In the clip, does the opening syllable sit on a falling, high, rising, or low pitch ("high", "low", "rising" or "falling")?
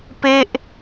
falling